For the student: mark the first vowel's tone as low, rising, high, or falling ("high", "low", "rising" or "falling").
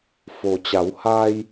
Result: low